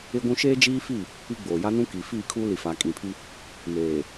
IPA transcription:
ɪ˦ ɡʷ ũ˦ ʃ eː˦ d͡ʒ iː˦ f i˦˨ | i˦ ɡ͡b oː˨ j a˦ n ũ˦ k i˨ f iː˦˨ kʰ uː˦ l i˨ f a˨ kʼ ĩ˨ pʰ i˦ | m eː˨

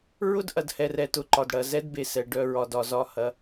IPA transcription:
ɹ ʊ˥ d ʔ ɐ˨ d h ɛ˨ r ɛ˨ t ʊ˩ ǃ ɒ˩ d ɽ ɐ˩ z ɛ˦ d b e˩ s ɛ˩ ɖ œ˨ ɹ ɒ˩ d ɒ˩ z ɒ˨ h ɐ˩

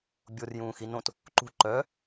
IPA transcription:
bʲ o r j ũː x i n õ t | ǃ ṳ ǃ œ

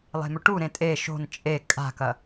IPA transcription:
lˠ e̤ m ɵ ʈ u ɾ ẽ tʼ e ʃ o̤ n t͡ʃʼ e kʼ a̤ k ɐ

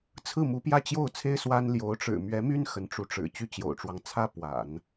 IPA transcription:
t͡sʰ ɹ̩˥˩ m u˧˥ p j ä˥˧ t͡ɕ j o˥˩ ʊ̯ t͡sʰ e˥ ɪ̯ s w a˥ n l j o˧˥ ʊ̯ ʈ͡ʂ ɻ̩˨˩ m ɥ ɛ˧˥ m y˥ n x ə˧˥ n ʈ͡ʂ u˧˥ ʈ͡ʂ ɻ̩˨˩ t͡ɕ y˥˩ t͡ɕ j o̰˨˩ ʊ̯ ʈ͡ʂ w ɑ˦ ŋ t͡sʰ ä˥ p w a̰˨˩˦ n

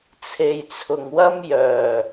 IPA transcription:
t͡sʰ e˨ j t͡sʰ ʊ˨ ŋ w ɐ˥ m j œː˨˩

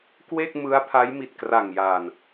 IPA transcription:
k w e˥˩ k̚ m ɯ˦˥ a̯ pʰ a˦˥ j m i˨˩ t̚ k r a˨˩ ŋ j aː˨˩ n

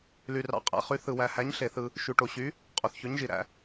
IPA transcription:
l y˩ r ɑ̰˩˥ qʼ æ̰˩˥ χ y˩˥ θ ɯ˩ w æ˩ h æ˩˥ ɲ ɬ e˩ θ ɯ˩ | ʃ y˩ ʈ o˩ ɕ y˩˥ | qʼ o˩ θ ç ø˩˥ ɲ ʒ i˩ ɾ æ̰˩

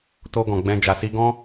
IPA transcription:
t o˧ ɡ ɔ̃˨ ɡ͡b ɛ̃˧ d͡ʒ a˧ s i˦ ɡ ɔ̃˦

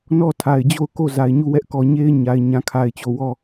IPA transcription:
n ɔ˦˨ tʰ a˨ ɪ̯ d͡ʑ o˦˨ ʊ̯ k o˦˨ z a˨ ɪ̯ ɲ u˦˨ w ɛ˦ ʔ k ɔ˨ ɲ e˦ ɪ̯ ɲ a˨ ɪ̯ ɲ ã˨ kʰ a˨ ɪ̯ t͡ɕ o˨ w ɔ˦˨

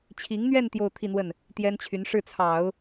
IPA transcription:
t͡ɕʰ i˧˥ ŋ n̪ ɥ ɛ˥˧ n t̪ j o˥˧ ʊ̯ t̪ʰ i˥˧ n̪ w ə˥˩ n | t̪ j ɛ˥ n t͡ɕʰ y˧˥ n ʂ ɻ̩˥˩ t͡sʰ ɑ˨˩˦ ʊ̯

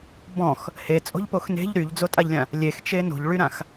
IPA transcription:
b ɔ̃ x | h e t͡sʼ o̤ ʎ p o x n e̤ ʎ ɾ y ʎ d͡z o tʼ a ʎ lʲ ã | lʲ e x t͡ʃ e n o̤ ʎ ɭ y ɾ ã x

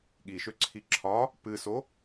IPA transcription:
ɠ i ʃ ø ǀʰ i ǁʰ ɒ | p ɨ s o

